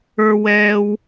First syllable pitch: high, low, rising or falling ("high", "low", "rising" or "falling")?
high